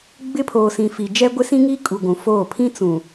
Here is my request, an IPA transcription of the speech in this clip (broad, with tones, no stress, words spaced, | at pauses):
ɡ͡bɪ˦pʰoː˨sĩ˨fi˨ d͡ʒɛ˦ɡʷɪ˦sĩ˦ŋiː˦ kʼu˨ɡʷũ˨foː˦˨ pʰĩ˦t͡sũ˨